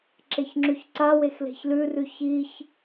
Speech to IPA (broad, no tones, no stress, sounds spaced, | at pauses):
ǁ e ç ŋ͡ǁ ʉ ç ǀ a w e x l e̤ ç l ʉ r ʉ ç i ç